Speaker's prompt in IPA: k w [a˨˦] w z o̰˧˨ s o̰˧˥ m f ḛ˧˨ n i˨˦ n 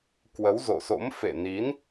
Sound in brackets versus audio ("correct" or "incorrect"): incorrect